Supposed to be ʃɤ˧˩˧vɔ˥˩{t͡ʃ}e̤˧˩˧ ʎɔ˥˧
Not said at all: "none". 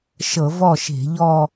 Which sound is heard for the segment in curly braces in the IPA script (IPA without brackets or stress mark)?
ʃ